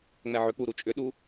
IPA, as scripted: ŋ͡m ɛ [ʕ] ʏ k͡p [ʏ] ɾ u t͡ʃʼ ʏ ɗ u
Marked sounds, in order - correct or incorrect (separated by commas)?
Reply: correct, incorrect